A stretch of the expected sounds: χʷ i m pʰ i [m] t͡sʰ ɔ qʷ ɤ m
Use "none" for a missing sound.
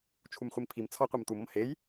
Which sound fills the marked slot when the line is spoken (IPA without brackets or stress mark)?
m